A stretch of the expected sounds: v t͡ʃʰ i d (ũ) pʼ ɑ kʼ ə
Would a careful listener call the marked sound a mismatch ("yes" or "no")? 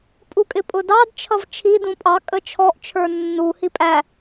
no